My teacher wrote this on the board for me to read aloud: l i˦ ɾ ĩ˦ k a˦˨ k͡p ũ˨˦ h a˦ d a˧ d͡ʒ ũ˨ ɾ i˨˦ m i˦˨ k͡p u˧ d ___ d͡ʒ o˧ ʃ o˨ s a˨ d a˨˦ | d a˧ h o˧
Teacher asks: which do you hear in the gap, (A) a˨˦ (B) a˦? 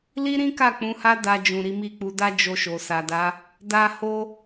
B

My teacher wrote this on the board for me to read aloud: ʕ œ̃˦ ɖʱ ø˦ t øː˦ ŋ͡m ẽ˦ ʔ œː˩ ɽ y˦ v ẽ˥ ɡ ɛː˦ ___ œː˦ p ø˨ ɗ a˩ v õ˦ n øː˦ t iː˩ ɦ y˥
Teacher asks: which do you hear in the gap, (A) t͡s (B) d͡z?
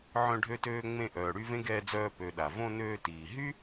B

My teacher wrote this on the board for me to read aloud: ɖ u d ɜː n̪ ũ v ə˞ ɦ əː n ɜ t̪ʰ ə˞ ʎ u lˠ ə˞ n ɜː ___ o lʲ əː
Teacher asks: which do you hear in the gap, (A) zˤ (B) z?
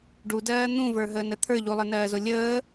B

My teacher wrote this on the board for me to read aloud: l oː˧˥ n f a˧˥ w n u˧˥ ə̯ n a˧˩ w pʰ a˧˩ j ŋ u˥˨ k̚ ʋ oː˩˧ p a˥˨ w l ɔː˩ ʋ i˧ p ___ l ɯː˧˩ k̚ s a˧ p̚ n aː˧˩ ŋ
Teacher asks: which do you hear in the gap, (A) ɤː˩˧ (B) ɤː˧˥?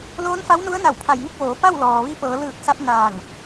A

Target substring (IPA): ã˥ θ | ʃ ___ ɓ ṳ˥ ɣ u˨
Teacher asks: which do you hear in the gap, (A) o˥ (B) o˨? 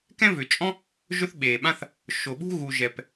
B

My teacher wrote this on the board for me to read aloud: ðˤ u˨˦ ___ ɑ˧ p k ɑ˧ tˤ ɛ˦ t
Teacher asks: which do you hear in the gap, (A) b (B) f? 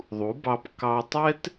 A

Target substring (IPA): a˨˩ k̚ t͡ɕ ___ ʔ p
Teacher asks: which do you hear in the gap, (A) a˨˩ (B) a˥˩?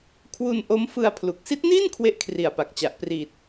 A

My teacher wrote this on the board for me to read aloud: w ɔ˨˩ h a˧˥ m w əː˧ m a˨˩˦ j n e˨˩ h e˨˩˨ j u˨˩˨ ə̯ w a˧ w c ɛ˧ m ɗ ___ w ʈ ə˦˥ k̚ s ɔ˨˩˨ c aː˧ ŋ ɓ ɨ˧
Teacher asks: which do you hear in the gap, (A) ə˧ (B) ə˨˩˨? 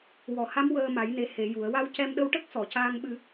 A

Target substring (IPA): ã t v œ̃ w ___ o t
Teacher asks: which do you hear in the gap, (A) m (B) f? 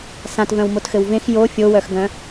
A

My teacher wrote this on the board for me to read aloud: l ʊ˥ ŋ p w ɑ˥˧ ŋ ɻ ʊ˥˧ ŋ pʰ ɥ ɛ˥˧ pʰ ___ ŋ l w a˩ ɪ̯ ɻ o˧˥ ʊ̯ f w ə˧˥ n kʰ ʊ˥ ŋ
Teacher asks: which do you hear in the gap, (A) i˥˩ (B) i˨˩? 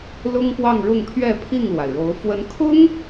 A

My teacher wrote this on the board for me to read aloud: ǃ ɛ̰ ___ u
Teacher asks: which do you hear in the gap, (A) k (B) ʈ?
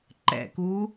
A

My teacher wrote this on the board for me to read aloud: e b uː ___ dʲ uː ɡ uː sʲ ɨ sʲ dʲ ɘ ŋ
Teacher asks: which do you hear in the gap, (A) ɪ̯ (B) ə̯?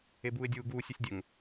A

